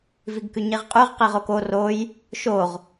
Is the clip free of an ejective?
no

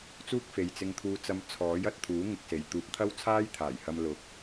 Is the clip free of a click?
yes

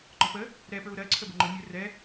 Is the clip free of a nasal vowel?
yes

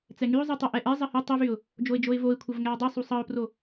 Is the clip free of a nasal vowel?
yes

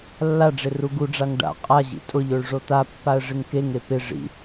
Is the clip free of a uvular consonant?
no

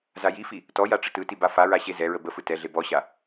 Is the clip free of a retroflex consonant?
no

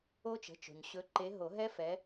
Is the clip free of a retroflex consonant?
yes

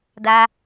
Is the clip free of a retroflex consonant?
yes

